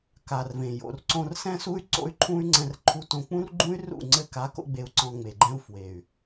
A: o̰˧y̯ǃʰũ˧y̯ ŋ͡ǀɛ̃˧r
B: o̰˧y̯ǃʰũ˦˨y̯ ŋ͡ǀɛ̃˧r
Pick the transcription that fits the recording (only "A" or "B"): A